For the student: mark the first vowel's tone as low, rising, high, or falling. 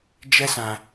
high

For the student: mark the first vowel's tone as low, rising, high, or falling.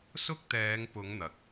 high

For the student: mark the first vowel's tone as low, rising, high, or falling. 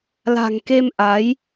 low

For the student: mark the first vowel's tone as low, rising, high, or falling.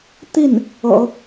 falling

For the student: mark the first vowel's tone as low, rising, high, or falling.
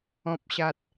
low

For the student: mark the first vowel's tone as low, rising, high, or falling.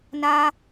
high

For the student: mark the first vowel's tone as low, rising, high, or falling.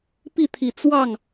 falling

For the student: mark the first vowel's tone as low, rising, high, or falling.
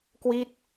falling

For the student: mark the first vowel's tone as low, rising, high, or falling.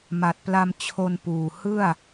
low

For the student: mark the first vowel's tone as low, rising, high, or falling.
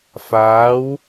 rising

